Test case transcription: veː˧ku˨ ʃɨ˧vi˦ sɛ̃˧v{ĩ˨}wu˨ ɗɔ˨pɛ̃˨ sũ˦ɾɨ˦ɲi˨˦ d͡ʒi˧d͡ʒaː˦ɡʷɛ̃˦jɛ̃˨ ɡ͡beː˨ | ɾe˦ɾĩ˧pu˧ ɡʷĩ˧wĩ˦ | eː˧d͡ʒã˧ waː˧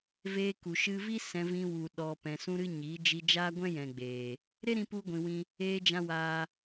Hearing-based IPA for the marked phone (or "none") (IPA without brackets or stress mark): ĩ˧